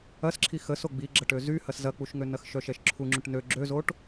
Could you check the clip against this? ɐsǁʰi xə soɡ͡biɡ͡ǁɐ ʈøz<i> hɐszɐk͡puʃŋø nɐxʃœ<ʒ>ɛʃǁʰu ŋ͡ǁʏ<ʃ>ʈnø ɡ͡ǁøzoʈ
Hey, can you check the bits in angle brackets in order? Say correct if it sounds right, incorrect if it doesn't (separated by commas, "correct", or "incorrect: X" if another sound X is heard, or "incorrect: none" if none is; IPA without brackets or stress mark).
incorrect: y, incorrect: ʃ, incorrect: none